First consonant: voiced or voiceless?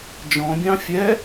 voiced